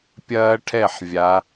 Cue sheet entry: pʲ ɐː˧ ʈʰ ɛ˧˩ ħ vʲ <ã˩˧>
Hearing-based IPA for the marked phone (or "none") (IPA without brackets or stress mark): a˩˧